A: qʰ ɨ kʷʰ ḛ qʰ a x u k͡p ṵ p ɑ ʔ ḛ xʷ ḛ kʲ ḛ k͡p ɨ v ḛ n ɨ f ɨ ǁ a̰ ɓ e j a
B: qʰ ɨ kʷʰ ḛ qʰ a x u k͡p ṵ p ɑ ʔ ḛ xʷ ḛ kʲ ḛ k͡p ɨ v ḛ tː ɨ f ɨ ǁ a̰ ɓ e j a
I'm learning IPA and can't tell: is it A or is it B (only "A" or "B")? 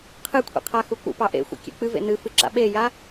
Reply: A